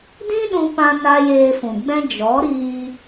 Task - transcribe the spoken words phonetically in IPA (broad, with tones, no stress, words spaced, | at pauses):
dĩ˦ ɗũ˦ pã˦na˦ jeː˧fũ˨ɡ͡bɛ̃˦ d͡ʒɔ˨˦ɾiː˧